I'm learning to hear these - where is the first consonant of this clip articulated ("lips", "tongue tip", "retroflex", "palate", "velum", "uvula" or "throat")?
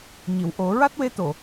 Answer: palate